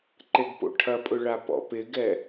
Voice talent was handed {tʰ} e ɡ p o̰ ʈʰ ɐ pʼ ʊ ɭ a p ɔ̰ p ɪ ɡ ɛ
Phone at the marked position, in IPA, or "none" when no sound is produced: ǃ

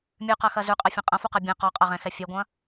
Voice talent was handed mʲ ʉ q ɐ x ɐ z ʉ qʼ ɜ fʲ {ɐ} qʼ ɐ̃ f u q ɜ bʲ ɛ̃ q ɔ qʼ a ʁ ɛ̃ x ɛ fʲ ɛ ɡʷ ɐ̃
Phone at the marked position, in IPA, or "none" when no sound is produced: ɐ̃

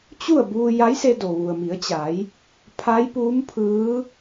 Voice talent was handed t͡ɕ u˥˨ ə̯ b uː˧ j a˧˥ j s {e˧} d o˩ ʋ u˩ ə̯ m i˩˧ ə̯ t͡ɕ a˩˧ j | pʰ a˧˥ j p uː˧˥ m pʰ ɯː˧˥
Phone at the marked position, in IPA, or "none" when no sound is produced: e˧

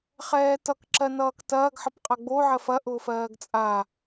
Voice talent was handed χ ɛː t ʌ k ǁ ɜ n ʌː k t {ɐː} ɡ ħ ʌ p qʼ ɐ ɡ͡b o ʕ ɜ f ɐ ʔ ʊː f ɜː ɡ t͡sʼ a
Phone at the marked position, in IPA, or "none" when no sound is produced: ɐː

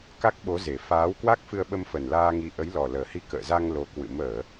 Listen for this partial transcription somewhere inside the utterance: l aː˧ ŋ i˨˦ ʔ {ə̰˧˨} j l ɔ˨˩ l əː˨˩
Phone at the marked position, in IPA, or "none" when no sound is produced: ə˨˦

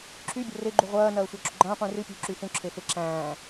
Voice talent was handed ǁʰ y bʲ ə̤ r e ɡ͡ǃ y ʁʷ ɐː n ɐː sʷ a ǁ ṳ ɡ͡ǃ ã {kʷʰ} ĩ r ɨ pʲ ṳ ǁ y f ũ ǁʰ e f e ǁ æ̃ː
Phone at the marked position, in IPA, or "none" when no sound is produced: qʷ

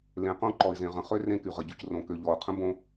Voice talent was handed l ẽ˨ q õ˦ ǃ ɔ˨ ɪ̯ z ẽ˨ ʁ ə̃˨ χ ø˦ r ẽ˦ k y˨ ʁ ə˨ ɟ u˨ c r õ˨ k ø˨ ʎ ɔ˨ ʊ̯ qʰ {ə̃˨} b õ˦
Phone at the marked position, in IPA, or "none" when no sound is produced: ə̃˦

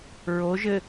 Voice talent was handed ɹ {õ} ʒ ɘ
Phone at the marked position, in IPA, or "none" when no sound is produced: o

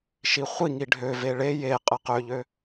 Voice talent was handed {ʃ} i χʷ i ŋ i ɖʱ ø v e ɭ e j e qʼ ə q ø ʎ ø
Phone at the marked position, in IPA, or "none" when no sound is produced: ʃ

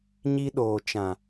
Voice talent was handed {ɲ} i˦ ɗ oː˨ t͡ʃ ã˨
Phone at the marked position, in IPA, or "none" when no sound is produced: ɲ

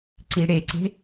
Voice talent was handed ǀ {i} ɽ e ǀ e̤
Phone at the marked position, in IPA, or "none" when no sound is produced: i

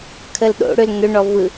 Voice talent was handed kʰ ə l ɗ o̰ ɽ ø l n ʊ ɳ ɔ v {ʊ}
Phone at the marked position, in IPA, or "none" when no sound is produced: ɯ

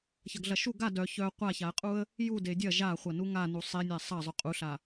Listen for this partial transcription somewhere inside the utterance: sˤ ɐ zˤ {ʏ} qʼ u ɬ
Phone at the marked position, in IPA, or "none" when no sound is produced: ʏ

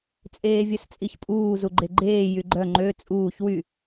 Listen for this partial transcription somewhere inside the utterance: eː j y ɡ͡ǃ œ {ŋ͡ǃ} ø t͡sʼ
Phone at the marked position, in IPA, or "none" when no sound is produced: ŋ͡ǃ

